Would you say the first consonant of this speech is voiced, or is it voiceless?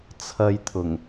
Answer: voiceless